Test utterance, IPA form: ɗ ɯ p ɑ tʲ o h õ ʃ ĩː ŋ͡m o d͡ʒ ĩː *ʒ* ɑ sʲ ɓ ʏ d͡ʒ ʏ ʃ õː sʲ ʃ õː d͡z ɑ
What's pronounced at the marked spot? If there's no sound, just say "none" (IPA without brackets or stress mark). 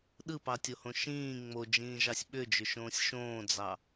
ʒ